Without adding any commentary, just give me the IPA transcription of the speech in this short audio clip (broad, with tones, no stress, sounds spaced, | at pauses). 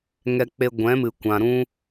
ŋ ɛ˧ k͡p e˧ ɡʷ ɛ̃˨˦ m ɨ˨ kʷ ã˨ ɾ ũ˧